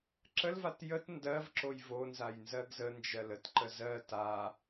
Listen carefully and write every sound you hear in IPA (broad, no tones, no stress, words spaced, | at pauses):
ǁəlvat jət ndɜvǁoj vonzaj nzɜɡzənd͡ʒɜl ətǃə zɜ ta